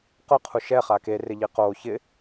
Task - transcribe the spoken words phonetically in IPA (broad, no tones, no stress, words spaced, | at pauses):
qʊqʰu ʃɛχa kerɪʎi qo çɪ